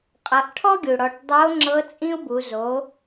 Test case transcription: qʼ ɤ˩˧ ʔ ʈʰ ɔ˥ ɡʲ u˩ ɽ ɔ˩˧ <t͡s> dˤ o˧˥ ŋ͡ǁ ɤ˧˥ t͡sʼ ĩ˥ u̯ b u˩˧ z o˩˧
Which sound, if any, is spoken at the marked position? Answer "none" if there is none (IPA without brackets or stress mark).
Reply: ʈ